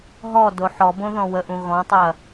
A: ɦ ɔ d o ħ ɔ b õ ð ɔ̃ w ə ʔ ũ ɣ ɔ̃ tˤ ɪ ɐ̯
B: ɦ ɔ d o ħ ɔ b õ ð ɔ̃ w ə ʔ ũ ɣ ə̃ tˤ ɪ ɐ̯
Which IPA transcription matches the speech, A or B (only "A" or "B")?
A